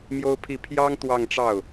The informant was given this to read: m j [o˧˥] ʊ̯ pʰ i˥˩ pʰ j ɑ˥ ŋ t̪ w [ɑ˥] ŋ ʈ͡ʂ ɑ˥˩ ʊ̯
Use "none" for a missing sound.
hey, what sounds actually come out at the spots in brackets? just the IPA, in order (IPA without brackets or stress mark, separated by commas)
o˥, ɑ˥˧